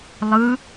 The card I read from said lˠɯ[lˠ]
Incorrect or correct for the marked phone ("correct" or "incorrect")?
incorrect